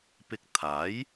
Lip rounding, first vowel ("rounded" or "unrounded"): unrounded